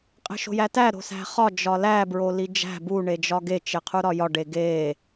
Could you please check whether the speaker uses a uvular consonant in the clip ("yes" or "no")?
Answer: yes